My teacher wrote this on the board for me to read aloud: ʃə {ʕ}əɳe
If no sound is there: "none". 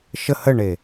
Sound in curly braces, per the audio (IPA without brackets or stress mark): h